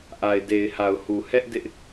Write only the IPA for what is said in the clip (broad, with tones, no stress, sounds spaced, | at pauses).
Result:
ʔ a˨ ɪ̯ d e˨ ɪ̯ h a˨ ʊ̯ h u˨ h ɛ˦ ʔ d ɪ˦ ʔ